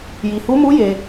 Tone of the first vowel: low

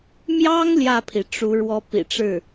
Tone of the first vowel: high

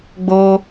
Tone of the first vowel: high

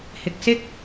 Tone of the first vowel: low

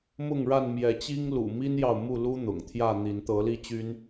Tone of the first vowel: falling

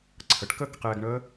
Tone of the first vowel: rising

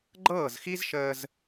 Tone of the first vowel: falling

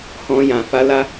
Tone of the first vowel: high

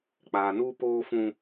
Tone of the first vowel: low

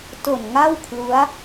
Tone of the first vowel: low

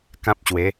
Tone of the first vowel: high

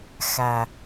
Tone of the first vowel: low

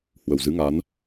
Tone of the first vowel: low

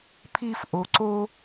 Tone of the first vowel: high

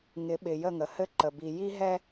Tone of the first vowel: rising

